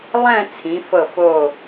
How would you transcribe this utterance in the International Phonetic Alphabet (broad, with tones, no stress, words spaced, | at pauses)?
lˠɛ̃˥˧t͡sʰĩ˩˧fɤ˧˩f o˧˩